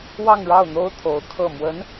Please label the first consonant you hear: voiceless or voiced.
voiced